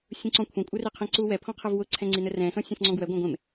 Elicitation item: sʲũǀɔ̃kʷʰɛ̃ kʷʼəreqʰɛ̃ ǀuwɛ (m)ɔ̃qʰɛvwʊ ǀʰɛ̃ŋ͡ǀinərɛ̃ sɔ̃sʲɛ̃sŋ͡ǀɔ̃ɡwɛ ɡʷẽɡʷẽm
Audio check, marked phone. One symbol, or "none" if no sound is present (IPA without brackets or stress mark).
pʰ